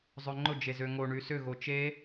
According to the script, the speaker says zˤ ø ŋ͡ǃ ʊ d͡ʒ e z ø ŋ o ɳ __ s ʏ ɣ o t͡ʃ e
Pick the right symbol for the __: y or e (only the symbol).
y